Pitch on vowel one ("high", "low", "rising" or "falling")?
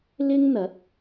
high